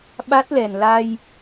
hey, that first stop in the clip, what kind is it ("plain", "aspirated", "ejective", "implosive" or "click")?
implosive